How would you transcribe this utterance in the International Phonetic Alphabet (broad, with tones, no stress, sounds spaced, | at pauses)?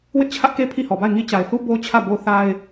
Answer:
w ɪ˦ ʔ t͡ɕʰ ä˦ ʔ k e˦ pʰ i˦˨ h ɔ˨ b a˦˨ ɪ̯ ŋ i˦ t͡ɕ a˨ ɪ̯ θ u˦ b o˦ t͡ɕʰ ä˦˨ b o˦ θ a˦ ɪ̯